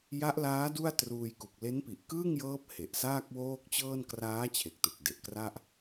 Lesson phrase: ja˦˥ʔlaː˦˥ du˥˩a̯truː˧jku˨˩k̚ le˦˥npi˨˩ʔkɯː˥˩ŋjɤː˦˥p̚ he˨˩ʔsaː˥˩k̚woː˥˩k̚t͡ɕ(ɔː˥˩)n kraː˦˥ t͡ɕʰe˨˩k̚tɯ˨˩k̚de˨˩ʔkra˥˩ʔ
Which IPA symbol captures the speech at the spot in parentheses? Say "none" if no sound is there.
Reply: ɤː˥˩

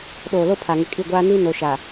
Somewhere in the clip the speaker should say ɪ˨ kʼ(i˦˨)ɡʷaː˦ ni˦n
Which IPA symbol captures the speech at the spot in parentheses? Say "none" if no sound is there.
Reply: i˦˨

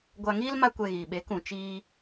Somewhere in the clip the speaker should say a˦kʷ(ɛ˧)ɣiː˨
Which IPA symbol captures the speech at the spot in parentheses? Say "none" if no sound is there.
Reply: ɛ˧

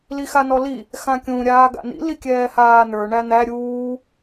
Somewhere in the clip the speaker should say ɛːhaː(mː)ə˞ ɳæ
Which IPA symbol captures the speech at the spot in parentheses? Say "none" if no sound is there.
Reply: n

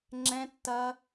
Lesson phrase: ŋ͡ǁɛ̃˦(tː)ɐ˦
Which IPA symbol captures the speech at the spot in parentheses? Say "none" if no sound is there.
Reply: tː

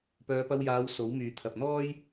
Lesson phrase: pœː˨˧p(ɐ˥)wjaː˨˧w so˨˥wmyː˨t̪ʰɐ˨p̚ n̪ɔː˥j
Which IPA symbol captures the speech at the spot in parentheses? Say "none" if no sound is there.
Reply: ɐ˧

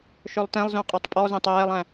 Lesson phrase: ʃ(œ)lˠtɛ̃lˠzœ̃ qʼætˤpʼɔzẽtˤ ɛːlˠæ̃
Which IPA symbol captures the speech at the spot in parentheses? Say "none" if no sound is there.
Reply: œ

